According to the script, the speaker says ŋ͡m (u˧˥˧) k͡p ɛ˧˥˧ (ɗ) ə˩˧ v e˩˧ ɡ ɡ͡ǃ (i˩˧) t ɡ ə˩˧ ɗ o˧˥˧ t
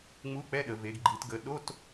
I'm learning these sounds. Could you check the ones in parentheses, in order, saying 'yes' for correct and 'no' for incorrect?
yes, yes, yes

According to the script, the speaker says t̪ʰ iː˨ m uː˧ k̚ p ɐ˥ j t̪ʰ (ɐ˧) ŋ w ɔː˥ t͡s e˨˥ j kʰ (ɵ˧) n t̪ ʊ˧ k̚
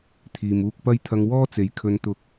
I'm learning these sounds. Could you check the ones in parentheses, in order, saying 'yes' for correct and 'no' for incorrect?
yes, yes

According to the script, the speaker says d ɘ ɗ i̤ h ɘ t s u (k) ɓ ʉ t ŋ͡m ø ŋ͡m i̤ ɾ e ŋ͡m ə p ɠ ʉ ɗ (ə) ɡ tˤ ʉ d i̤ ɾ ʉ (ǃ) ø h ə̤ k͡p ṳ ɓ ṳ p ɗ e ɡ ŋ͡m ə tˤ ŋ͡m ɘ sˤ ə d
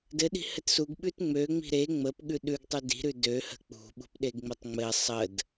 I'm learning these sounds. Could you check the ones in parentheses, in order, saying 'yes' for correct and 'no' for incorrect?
no, no, no

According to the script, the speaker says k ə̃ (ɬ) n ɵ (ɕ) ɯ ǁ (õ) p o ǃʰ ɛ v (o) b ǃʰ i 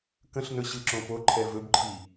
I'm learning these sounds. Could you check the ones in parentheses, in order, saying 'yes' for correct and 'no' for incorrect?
yes, yes, yes, no

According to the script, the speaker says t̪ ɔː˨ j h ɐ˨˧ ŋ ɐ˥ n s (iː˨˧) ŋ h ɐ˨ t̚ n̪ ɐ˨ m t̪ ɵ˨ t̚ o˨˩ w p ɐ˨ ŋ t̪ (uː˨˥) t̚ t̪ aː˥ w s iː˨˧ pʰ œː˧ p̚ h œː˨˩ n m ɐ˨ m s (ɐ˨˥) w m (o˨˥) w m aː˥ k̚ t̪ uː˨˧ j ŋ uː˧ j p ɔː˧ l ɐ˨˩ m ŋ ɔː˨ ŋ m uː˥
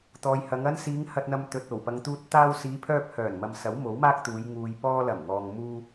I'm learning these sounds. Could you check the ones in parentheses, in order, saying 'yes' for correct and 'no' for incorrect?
yes, no, yes, yes

